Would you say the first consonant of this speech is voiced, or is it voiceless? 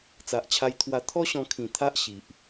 voiceless